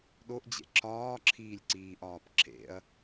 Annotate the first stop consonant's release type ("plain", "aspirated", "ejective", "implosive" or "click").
implosive